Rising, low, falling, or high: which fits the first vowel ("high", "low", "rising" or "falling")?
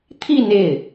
falling